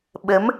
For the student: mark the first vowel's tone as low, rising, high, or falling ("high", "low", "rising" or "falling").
rising